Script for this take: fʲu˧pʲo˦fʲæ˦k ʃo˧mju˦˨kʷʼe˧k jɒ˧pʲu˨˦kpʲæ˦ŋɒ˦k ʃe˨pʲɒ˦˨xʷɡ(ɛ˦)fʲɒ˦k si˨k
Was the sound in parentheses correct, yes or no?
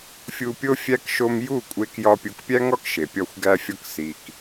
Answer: no